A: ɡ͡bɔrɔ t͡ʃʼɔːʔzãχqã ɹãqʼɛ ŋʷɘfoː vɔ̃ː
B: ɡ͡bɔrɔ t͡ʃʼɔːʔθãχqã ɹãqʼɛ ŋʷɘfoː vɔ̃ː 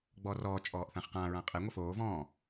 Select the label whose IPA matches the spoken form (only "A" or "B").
B